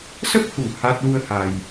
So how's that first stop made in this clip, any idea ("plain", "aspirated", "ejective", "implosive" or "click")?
plain